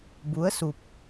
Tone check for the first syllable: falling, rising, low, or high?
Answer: rising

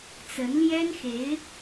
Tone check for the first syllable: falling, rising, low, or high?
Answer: rising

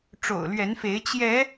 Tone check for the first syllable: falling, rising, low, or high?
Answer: low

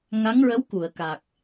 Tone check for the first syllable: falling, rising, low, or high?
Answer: rising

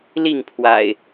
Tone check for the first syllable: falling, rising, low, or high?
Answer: falling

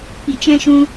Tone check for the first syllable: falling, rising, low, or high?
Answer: low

